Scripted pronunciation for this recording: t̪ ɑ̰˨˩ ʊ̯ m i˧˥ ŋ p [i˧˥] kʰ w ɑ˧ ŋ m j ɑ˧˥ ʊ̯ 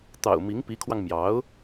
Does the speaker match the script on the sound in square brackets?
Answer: yes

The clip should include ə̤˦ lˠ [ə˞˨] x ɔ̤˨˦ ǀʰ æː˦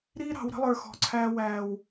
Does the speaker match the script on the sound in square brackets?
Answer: yes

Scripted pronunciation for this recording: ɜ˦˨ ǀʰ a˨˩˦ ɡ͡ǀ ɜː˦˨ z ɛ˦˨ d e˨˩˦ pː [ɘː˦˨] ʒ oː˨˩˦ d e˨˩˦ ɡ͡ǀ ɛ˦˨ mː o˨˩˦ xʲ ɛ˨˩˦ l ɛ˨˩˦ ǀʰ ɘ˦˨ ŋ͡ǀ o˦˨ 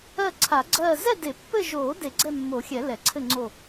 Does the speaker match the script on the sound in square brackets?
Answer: no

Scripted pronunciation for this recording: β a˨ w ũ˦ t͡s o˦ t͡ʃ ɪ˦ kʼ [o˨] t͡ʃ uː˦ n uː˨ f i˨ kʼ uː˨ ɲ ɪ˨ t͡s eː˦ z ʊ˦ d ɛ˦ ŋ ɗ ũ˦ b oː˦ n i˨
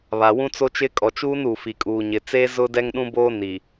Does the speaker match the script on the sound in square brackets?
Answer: no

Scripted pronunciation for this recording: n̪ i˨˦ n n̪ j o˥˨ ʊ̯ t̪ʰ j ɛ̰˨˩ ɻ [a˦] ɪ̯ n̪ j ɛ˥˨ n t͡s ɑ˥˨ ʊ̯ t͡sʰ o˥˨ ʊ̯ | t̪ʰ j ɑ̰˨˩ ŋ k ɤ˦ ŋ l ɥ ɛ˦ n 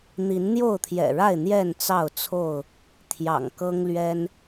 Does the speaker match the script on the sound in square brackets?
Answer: no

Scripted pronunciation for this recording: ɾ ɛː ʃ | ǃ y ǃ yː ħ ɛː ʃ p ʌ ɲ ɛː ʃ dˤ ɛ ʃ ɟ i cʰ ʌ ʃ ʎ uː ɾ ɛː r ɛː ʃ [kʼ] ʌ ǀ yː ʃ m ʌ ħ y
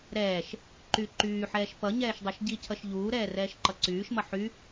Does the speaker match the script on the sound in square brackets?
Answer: no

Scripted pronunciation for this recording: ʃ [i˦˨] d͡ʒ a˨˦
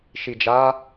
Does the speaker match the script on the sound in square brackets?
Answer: no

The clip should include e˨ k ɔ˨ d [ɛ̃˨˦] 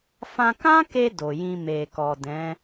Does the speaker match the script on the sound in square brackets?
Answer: yes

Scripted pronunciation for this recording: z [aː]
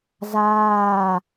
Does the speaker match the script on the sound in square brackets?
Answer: yes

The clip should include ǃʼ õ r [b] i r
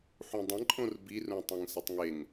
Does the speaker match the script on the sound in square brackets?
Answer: yes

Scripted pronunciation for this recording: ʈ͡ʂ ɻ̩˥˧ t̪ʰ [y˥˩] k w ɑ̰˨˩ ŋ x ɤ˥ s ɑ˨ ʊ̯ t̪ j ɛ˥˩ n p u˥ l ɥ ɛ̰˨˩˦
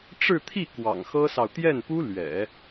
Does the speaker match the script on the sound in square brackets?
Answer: no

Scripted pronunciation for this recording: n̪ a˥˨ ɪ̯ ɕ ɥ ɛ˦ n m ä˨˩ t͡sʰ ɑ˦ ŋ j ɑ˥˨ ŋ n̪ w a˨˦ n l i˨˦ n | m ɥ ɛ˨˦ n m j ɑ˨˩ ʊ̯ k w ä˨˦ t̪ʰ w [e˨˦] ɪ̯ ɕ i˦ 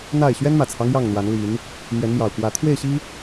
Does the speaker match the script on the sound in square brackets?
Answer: no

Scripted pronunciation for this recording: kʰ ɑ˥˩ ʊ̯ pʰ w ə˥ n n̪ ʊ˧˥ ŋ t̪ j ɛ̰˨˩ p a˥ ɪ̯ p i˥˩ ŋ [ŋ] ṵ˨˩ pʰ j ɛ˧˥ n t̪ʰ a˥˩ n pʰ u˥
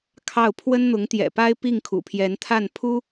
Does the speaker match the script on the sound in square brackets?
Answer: no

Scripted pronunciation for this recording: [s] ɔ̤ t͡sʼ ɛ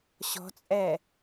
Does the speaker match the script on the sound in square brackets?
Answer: no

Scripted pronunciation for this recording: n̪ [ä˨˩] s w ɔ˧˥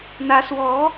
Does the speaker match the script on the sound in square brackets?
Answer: no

